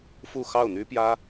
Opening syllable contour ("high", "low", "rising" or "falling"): falling